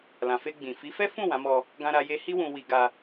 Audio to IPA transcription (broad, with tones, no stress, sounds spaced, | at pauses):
l ã˨ f e˧ ɡ͡b ĩ˨ f i˨˦ f ɛ˦ f ũ˦˨ w ã˨˦ m ɔ˧ | ɡ ã˦ ɾ a˦ j e˧ h i˦ w ũ˧ w i˧ ɡ a˧